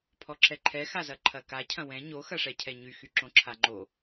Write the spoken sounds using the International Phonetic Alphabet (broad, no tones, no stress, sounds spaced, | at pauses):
pʰ ɔ ǁʰ ɛ ǃʰ ɛ x a z ɐ ǃʰ ɐ k a cʰ ɐ̃ w ɛ̃ ɲ o x ɐ ʂ ɛ cʰ ɛ ɲ y x y ǁ õ ǁʰ a ŋ͡ǃ o